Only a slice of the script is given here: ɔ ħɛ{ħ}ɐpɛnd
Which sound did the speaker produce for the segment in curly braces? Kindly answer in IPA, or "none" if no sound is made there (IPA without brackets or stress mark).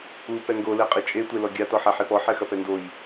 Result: x